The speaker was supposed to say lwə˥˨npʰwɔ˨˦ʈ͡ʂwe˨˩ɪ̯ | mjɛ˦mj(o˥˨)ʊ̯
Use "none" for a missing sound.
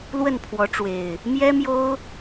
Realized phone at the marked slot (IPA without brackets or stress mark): o˦